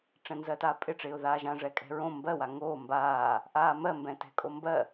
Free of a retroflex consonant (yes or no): no